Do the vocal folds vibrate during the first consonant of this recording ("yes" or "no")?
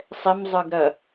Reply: no